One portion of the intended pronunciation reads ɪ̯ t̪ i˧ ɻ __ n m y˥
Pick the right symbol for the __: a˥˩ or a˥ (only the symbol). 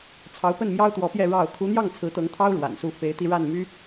a˥˩